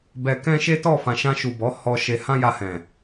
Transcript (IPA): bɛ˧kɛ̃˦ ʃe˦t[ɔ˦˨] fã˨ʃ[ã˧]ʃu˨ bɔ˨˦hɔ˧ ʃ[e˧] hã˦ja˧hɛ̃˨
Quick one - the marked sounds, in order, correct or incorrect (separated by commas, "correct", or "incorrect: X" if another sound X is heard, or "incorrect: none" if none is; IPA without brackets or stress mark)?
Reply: correct, correct, correct